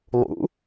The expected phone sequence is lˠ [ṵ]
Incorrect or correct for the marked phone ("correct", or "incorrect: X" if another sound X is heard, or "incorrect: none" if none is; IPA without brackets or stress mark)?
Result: correct